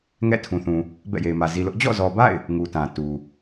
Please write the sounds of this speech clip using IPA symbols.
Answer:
ŋ ɛ̰˦˨ tʰ ũ˨ θ ũ˨ | b ɛ̰˦˨ j e˨ ɪ̯ m ä˨ z i˨ l ʊ˦ ʔ d͡ʑ ɔ̰˦˨ z ɔ˨ b a̰˦˨ ɪ̯ | ŋ u˨ t ã˨ t u˨

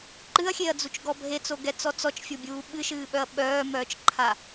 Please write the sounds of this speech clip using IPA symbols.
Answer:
ǃ ɨ ɐ̯ xʲ e ɐ̯ d͡z u t͡ʃ ɡ ɔ bʱ e t͡s o ɡ ɛ t͡s ɔ t͡s ɔ t͡ʃ fʲ o bʲ uː ɓ ɨ ʃ ɨː ɓ œ ɐ̯ ɓ œː m œː t͡ʃ ǃʰ a

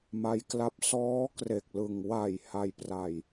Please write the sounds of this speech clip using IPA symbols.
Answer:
m a˦˥ j k l a˦˥ p̚ s ɔː˦˥ k r e˨˩ k̚ l ɯ˨˩ ŋ w a˨˩ j h a˧ j p r a˧ j

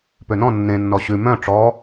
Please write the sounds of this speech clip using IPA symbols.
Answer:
p ø n ɔ̃ nː ẽ nː ɔ ɕ ʉ m œ̃ ʈ͡ʂ ɔ

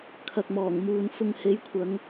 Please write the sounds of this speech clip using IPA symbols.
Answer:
kʰ ɐ˨ k̚ m ɔː˨˩ ŋ m uː˨ n f ʊ˨ ŋ h e˨˧ j kʷʰ ɐ˨˧ ŋ

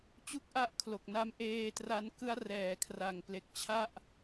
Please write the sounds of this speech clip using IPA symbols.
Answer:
t͡ɕ u˥˩ k̚ ʔ a˥˩ ʔ kʰ l o˨˩ k̚ n a˦˥ m ʔ eː˧ t r a˧ n k ɯ˦˥ a̯ r ɛː˨˩ kʰ r a˨˩ ŋ p l e˨˩ k̚ t͡ɕʰ a˥˩ ʔ

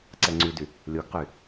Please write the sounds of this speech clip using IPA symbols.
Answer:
ǀ ɛ ŋ͡ǀ y d y | lʲ o ɡ q y

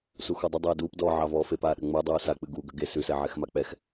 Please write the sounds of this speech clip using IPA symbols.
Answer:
s u x ɔ dˤ ə dˤ ɛː d uː p d ɔː ʕ ɑ v ɔː f e p aː ɗ ə ŋ͡m ə˞ dˤ uː s a k͡p ɨ ɡ u ɡ ə̤ ɡ e s ʉ s ɛ ʕ ɛ x m a k͡p ɛ x

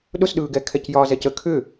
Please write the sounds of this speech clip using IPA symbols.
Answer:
ɗ ʊ s ɗ ɯː ɡ ɛ kʰ ɛ c j ɒː z ɛ c ə kʰ ʏ

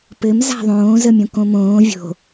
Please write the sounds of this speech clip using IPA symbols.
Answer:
p ɘ m z a̤ ðˤ õː z ə mʲ õ k õ m õː vʲ o̤

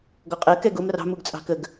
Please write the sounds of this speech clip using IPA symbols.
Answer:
ɡ ɔ qʼ ɜ k ɛ ɡ ʊ m r ɑ̤ m u ɡ t͡sʼ ɑ̤ k ə ɡ

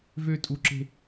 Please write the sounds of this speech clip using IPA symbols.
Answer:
v ø tʼ u ǁ e̤

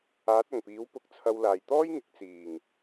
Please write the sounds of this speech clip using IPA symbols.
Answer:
aː˨˥ t̚ ɐ˨˩ ŋ p iː˨˥ w p ʊ˨ k̚ t͡sʰ ɐ˨˧ w l aː˨˩ j t̪ ɔː˥ j ŋ ɪ˨˥ k̚ t͡s iː˨˩ ŋ

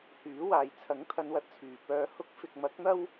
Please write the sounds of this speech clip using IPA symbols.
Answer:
h yː˨˥ w aː˨ j t͡sʰ ɐ˨˥ ŋ t̪ʰ ɐ˨˧ n w ɐ˨ t̚ t͡sʰ yː˨˩ p œː˧ h ʊ˧ k̚ f ɪ˨ k̚ m ɐ˨˥ k̚ n̪ ɐ˥ w

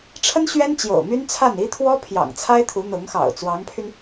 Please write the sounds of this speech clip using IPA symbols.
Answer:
ʈ͡ʂʰ ə˥ n ɕ ɥ ɛ˥ n t͡ɕ j o̰˨˩ ʊ̯ m y˥ n t͡sʰ a˥˩ n i˥ t̪ʰ w ɔ˥ pʰ j ɑ̰˨˩ ŋ t͡sʰ a˥ ɪ̯ t̪ʰ u˧˥ n̪ ʊ˧˥ ŋ x ɑ̰˨˩ ʊ̯ t͡s w ɑ˧˥ ŋ pʰ y˧ n

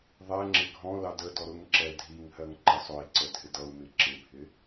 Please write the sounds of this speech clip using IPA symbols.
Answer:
ðˤ ɛ ŋ͡ǁ ɪ ɡʱ ɔ̃ l ɑ d ə d ɔ ɾ ʊ ŋ ǁ ɛ dʱ i ŋ h ɜ ŋ ǃ ɪ sˤ ʊ i̯ ǀ ə dʱ ɪ d ʌ u̯ m ɪ ǁ ɪ bʱ ɪ

